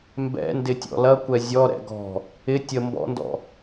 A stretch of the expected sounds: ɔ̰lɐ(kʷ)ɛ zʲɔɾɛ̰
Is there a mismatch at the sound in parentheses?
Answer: no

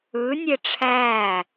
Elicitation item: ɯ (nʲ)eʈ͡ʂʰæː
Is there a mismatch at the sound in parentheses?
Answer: no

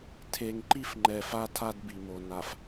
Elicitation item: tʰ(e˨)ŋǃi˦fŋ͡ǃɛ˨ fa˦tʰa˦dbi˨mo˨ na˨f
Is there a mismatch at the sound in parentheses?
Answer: no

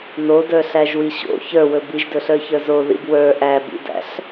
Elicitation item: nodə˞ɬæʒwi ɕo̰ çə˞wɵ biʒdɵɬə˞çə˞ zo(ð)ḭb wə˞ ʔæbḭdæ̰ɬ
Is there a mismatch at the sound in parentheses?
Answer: no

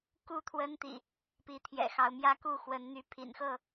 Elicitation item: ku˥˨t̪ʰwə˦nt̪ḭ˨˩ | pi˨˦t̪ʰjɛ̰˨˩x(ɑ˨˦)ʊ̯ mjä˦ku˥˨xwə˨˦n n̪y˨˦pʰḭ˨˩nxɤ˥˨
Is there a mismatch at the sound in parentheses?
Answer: no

